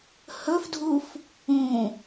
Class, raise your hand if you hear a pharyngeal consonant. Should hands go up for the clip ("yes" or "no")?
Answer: no